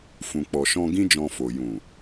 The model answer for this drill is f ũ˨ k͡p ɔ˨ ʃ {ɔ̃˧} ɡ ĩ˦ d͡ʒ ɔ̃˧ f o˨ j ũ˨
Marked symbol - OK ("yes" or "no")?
yes